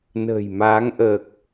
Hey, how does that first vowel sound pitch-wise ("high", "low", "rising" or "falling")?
low